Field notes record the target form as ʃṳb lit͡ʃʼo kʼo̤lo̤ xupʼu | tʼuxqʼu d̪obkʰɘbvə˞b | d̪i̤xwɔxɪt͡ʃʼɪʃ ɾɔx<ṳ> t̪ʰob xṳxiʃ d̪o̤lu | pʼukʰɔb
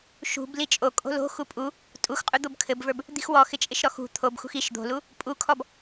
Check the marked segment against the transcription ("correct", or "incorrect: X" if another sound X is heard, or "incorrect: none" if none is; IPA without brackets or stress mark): correct